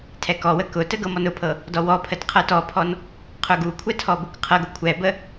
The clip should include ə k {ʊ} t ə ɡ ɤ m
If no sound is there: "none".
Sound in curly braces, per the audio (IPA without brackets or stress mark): ʊ